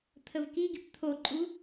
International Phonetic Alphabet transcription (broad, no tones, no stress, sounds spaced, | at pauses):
t̪ʰ ə v k i ɡ i p t̪ʰ o ǃʼ u